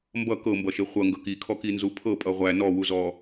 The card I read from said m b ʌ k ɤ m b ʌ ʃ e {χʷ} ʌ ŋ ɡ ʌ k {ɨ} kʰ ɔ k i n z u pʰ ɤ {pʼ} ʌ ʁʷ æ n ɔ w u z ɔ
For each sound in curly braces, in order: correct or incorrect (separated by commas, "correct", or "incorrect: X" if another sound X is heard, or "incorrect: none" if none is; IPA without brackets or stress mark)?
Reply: correct, incorrect: i, correct